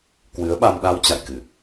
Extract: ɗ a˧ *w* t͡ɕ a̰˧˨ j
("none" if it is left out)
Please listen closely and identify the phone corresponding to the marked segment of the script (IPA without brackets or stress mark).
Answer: w